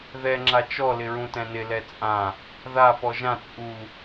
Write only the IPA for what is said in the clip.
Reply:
ð ɛ ŋ͡ǁ a t͡ʃ ɔ l ɪ ɹ ũ t ɛ̃ n ɪ l ɛ t͡sʼ ã | ð a p ɔ ʒ ã t͡sʼ u

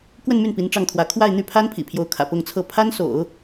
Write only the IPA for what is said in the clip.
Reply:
k w ə˥˧ n m y˥˩ n p i˧˥ n ʈ͡ʂ ɑ˥˩ ŋ t̪ʰ w ä˧˥ kʰ w a˥˧ ɪ̯ n̪ y˥˩ pʰ a˥ n pʰ ḭ˨˩ pʰ j o˧˥ ʊ̯ kʰ ä̰˨˩ p ʊ˥˧ ŋ t͡sʰ ɤ˥˩ pʰ a˥ n s o̰˨˩˦ ʊ̯

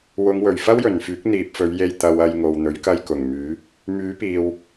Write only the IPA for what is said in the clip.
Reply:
w ʊ˨˧ ŋ w ɵ˨˩ ɥ f ɐ˥ w j ɵ˨˩ n f yː˨˥ k̚ n̪ iː˨ p̚ f ɵ˨˧ ɥ j e˧ j t̪ ɐ˨ w ɐ˧ j ŋ o˨ w n̪ ɵ˨˥ ɥ k ɐ˧ j k ʊ˨˩ ŋ m yː˨˥ | m yː˨˥ p iː˨ w

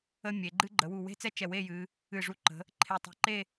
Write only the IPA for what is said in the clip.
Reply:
ə˥ mʲ e˩˧ ɡ͡ǃ ɨ˥ ɡ͡ǃ ə˩˧ w u˧˩ w e̤˥˧ t͡s ɛ˥ t͡ʃ ɛ˧˩ w e˥˧ j ɨ˩˧ | ɨ˧˩ ʐ u˧˩ ǃ ə̤˩˧ | ǃʰ e˧˩ tˤ e̤˧ ǃ e˥˧

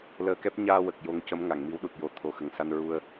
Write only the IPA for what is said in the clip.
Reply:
l əː˧ k ɛ˦˥ p̚ ɲ aː˧ w ə˨˩ k̚ j o˧˥ ŋ c ə˧˥ m ŋ a˨˩˨ ŋ m i˧˥ w ɗ u˨˩ t̚ j o˨˩˦ t̪ʰ o˨˩ x ə˨˩ ŋ s a˧ n ɹ u˧ ə̯

